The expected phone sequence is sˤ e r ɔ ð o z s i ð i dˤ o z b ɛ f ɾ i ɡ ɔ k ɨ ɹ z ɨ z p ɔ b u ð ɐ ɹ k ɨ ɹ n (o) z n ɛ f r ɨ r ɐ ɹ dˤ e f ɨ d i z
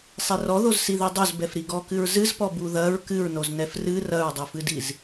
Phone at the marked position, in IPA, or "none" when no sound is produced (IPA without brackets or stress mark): o